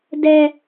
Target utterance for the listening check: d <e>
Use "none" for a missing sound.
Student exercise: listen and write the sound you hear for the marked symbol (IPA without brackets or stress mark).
ɛ